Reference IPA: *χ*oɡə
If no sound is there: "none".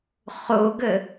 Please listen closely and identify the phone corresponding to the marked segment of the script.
χ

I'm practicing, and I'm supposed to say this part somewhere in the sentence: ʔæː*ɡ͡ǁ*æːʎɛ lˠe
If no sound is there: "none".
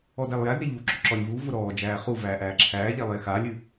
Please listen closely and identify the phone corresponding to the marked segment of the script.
ǁʰ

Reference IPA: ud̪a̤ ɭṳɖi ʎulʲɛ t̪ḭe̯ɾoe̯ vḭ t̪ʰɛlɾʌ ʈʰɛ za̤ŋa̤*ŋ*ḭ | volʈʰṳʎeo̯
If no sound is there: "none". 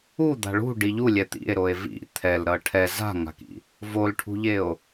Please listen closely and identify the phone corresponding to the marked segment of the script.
k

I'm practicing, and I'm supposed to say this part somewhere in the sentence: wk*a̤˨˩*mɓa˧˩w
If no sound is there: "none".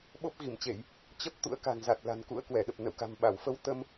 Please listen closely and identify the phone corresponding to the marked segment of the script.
a̤˨˩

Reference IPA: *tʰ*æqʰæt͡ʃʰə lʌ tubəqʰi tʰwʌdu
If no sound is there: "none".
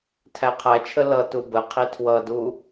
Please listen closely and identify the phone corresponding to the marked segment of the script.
tʰ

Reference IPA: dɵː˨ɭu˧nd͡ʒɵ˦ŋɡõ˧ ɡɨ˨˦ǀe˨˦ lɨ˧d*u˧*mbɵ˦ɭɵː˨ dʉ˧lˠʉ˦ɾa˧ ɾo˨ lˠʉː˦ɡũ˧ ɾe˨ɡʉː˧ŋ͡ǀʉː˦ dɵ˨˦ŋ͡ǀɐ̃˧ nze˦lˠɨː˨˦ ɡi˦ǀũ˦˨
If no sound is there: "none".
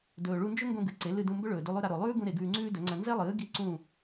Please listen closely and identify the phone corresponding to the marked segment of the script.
ũ˧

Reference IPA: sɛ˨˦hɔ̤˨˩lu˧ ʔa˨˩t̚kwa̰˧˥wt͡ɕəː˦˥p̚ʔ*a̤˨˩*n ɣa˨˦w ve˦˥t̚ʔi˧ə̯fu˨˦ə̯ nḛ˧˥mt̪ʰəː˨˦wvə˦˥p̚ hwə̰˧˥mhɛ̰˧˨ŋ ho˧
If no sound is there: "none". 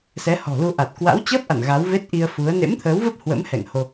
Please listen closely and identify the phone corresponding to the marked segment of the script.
a̰˧˨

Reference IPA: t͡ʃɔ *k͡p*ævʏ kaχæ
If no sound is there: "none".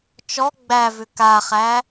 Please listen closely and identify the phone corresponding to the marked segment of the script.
ɡ͡b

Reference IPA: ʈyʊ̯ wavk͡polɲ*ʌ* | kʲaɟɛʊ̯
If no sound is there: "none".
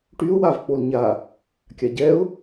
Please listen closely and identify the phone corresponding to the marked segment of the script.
a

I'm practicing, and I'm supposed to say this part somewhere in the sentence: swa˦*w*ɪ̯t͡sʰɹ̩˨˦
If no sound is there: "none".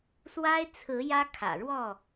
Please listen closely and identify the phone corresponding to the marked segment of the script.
none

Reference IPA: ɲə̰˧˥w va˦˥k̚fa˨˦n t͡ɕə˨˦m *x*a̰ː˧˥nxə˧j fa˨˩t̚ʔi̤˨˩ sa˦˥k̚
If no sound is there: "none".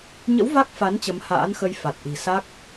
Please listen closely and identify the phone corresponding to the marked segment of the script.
h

